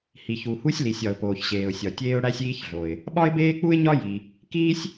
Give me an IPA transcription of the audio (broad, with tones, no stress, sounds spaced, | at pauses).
h i˩ ç u˩ h u˥ sʲ l i˩ sʲ ɒ˩ ʊ̯ p oː˩ ç ɕ eː˩ ʊ̯ sʲ ɒ˩ tʲ eː˥ ʊ̯ ɽ æ˥ sʲ iː˥ ç ɮ o˩ ɪ̯ | ɓ ɒ˥ ɪ̯ b eː˥ k͡p u˥ ɪ̯ ɲ ɒ˥ j i˩ | k iː˥ sʲ